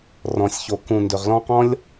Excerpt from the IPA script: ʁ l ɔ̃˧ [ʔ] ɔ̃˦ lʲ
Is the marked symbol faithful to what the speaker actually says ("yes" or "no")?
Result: no